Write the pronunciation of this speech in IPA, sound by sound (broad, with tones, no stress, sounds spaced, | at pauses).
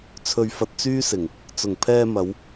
t͡sʰ ɵ˧ ɥ f ɐ˧ t̚ t͡s yː˥ s ɪ˨˩ ŋ | t͡s ʊ˨˩ ŋ pʰ ɛː˧ m ɐ˨˧ w